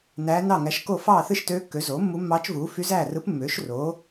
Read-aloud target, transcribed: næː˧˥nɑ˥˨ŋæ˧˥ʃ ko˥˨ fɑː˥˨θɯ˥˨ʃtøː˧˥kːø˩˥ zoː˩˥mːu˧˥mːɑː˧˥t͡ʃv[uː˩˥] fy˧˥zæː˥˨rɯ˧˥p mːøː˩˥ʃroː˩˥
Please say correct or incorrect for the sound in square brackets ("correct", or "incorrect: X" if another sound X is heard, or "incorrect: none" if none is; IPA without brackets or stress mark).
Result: correct